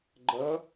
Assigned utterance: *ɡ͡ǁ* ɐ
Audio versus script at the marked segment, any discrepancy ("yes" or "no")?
yes